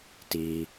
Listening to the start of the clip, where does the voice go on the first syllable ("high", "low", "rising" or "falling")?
low